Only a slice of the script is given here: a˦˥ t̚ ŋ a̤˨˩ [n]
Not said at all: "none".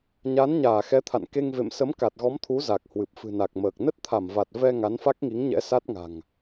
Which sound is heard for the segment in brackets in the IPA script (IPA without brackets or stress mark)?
ŋ